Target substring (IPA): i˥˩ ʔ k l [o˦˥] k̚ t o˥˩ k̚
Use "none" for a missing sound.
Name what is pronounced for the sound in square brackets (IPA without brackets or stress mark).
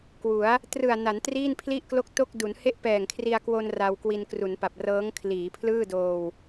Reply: o˥˩